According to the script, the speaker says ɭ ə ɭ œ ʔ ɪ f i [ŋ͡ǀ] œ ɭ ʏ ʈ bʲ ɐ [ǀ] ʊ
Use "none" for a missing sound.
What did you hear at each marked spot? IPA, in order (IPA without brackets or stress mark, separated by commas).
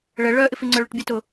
ŋ͡ǀ, t